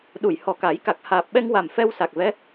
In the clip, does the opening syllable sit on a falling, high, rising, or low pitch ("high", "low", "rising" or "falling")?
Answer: low